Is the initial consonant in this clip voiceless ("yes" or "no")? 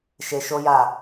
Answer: yes